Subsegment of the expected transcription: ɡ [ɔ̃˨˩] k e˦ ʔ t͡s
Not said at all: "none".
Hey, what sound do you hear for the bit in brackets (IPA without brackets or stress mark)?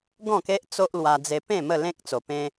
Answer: ɔ̃˥˧